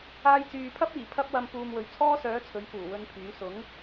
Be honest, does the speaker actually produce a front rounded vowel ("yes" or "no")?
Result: yes